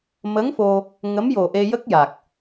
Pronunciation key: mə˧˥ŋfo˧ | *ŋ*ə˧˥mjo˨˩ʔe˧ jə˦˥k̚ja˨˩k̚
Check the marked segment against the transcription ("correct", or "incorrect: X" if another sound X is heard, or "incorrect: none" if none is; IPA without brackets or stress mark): correct